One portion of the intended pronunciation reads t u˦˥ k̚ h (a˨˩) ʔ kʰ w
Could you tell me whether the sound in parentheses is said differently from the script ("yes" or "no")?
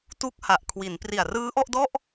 no